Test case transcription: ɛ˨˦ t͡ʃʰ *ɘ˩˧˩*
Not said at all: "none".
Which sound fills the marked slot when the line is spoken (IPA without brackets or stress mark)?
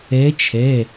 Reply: ɛ˩˧˩